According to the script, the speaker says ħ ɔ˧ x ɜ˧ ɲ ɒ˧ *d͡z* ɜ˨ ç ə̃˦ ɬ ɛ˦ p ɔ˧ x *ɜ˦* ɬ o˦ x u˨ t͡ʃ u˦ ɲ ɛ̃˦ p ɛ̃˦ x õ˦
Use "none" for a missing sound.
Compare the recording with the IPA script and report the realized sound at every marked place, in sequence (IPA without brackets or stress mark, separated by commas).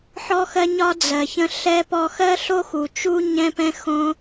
d͡z, ɜ˦